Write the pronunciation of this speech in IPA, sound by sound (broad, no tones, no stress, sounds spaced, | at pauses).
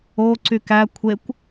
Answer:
o ǀ y k æ kʷʰ e kʷ